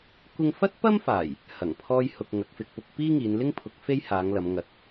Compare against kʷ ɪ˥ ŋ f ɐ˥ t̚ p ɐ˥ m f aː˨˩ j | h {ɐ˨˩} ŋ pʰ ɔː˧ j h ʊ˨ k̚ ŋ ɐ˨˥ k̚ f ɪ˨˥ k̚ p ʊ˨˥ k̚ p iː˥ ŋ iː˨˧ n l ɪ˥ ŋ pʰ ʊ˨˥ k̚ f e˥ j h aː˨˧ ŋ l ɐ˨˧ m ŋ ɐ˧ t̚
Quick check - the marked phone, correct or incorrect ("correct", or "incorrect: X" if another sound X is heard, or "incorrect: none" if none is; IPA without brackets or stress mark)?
correct